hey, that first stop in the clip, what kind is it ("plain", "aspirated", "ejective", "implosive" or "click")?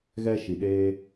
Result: implosive